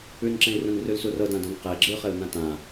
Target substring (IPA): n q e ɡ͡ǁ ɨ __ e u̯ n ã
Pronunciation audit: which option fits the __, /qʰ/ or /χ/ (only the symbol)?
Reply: χ